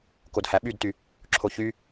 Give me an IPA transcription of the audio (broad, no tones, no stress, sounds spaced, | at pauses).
k o d h æ ɓ y d t y | ǁʰ o ç y